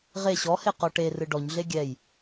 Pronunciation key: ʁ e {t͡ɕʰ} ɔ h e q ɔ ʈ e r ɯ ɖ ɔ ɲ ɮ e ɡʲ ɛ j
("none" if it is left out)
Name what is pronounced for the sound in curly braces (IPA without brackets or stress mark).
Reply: ɕ